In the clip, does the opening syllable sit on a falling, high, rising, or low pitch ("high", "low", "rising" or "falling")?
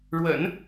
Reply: low